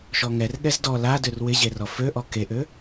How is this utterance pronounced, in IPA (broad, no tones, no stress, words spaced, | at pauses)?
ʃɔŋɛr ɠɛzdɔ ladør wɪʑerɔ føʔɔ keʔø